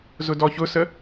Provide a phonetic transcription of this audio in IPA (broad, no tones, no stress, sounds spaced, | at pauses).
z ʊ d ɔ ç ʊ s ə